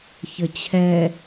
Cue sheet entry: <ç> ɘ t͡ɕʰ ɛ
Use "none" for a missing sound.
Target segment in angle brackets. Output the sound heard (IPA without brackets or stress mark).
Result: ç